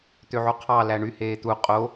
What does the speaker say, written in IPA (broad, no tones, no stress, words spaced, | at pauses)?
t̪øʕuqʰɑ læɳy heːt̪u qʼo